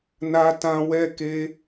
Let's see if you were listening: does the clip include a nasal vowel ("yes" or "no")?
yes